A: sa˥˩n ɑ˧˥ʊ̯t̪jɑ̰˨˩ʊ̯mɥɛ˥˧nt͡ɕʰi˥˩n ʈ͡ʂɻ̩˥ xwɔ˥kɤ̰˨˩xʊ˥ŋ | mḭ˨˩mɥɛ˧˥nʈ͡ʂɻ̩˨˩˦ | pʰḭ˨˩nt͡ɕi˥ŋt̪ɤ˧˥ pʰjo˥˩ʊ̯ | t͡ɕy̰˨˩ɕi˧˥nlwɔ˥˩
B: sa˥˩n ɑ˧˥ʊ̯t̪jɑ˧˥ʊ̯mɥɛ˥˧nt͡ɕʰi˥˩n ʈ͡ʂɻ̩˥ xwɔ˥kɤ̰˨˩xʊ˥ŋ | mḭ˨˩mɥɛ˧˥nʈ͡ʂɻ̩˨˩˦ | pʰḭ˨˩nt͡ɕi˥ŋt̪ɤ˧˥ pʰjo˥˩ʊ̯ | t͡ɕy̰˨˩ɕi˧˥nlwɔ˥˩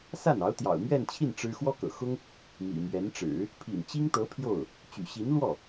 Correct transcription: A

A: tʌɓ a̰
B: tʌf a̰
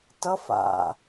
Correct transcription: B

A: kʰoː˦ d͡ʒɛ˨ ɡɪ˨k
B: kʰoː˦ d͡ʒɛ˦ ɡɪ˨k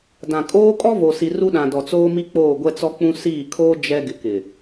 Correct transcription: B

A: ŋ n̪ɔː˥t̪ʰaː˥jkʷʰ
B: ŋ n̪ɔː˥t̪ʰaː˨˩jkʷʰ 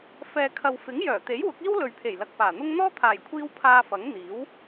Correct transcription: B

